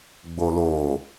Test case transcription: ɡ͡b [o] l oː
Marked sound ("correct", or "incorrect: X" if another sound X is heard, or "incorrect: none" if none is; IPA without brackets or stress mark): correct